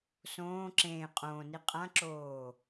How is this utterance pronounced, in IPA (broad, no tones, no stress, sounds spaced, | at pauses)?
s õː ǁ ẽː qʼ õː n i qʼ ã ǁ oː